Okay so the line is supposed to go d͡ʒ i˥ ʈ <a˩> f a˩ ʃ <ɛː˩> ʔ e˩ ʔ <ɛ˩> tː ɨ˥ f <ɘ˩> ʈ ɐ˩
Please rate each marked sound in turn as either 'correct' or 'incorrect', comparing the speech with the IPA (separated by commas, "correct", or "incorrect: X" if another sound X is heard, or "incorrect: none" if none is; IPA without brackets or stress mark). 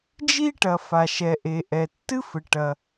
incorrect: ɐ˩, incorrect: ɛ˩, correct, correct